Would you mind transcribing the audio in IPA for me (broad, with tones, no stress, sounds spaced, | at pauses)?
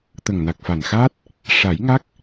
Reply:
t̪ ə˨˩ ŋ n a˨˩ k̚ f a˨˩ n x aː˦˥ t̚ | ʂ a˨˩˦ j ŋ a˦˥ k̚